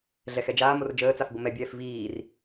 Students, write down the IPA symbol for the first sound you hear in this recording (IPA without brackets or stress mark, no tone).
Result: ɮ